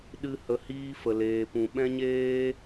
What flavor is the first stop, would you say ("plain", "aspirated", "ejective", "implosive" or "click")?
implosive